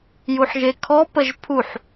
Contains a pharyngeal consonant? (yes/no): yes